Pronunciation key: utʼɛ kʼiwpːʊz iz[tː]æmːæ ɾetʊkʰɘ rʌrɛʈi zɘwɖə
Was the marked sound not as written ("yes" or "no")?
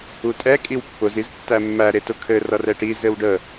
no